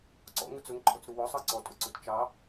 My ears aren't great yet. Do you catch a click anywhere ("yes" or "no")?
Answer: yes